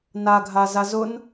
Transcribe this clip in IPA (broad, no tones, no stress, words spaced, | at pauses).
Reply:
naɡʱaza zʊn